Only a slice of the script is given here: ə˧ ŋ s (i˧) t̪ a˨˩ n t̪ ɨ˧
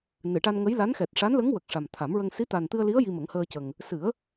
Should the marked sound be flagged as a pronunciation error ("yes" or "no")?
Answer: yes